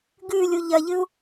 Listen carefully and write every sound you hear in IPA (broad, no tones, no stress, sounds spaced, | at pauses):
ɡ ʉ lʲ u ʎ ɐ ʎ ɨ u̯